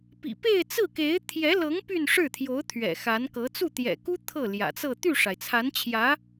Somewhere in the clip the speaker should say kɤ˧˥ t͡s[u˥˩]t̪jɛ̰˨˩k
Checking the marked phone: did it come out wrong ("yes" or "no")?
no